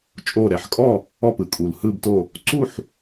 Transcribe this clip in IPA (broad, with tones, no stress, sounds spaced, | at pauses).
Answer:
t͡ʃʼ o˧˩ ɾ ɛ˩ ħ kʼ ɔ˥˨ | ɔ˧˩ p ɯ˩ kʼ u˩ l h ɯ˧˩ b t o˧˩ | ǀ u˥˨ ħ